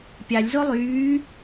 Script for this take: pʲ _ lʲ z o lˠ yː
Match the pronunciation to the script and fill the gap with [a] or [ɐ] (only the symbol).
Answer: a